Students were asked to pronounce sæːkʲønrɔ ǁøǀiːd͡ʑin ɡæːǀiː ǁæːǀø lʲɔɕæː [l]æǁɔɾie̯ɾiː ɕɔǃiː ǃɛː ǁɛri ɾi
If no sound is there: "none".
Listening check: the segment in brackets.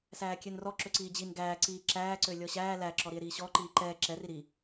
l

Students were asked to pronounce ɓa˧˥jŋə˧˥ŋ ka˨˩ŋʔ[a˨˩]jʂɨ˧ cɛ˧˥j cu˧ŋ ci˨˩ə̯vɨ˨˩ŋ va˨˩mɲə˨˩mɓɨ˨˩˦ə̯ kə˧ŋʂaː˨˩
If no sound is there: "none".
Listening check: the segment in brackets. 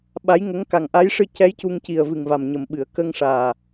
a˧˥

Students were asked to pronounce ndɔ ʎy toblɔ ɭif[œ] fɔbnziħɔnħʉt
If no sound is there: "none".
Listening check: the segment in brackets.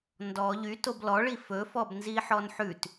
ɵ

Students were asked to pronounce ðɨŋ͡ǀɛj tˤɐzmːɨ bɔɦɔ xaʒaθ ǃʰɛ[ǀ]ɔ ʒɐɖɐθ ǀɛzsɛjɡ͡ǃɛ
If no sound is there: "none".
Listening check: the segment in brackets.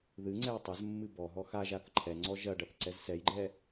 ŋ͡ǀ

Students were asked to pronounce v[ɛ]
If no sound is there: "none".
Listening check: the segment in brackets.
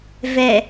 ɛ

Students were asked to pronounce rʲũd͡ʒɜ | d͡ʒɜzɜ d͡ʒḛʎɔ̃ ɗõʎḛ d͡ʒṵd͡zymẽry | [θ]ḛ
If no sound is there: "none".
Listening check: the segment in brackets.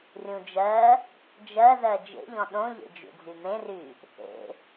θ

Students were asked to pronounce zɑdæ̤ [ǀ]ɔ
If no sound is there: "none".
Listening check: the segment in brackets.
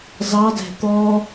t̪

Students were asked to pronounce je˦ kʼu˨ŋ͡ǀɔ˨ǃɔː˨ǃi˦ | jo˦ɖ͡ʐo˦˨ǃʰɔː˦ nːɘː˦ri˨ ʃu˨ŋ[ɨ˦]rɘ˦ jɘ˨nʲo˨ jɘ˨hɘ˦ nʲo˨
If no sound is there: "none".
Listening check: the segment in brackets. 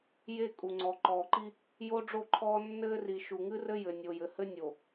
ɨ˦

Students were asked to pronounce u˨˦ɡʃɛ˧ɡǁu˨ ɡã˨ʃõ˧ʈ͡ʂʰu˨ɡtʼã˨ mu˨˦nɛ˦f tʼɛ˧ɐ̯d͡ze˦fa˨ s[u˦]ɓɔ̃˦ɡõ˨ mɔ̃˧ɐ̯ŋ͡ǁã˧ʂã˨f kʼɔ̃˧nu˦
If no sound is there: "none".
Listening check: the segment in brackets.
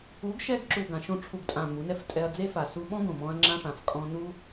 u˧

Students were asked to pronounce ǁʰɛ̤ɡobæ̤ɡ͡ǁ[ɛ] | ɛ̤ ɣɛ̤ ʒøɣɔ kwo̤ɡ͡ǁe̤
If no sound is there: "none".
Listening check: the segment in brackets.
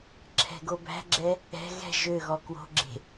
ɛ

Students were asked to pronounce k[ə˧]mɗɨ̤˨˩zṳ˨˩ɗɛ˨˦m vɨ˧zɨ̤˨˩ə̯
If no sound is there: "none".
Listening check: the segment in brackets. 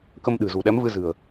ə˧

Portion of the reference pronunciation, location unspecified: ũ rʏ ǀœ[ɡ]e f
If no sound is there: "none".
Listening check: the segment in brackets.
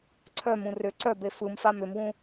b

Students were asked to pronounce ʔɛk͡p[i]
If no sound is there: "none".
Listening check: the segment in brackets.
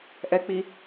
i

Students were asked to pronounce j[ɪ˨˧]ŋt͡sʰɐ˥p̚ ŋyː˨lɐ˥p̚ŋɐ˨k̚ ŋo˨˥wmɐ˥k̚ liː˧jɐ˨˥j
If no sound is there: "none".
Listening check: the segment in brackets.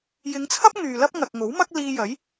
ɪ˨˧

